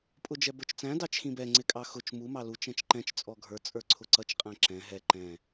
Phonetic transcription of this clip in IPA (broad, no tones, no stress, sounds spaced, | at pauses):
pʼ ʊ d͡ʒ ɛ b ə˞ t͡ʃ t͡s æ̃ d ɑ t͡ʃ x ĩ b ɛ ŋ͡ǀ ɪ kʼ ɑ x ʊ t͡ʃ m u m ɑ l u t͡ʃ ɛ̃ t͡ʃ ǃ ɛ̃ t͡ʃ t͡sʼ ɔ ɡʱ ə˞ t͡sʼ ə˞ ǀʰ ʊ ǀ ʌ t͡ʃ qʼ æ̃ ǁ ɛ̃ ɦ ɛ ǃ ɛ̃